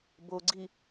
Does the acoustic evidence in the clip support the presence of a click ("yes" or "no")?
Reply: yes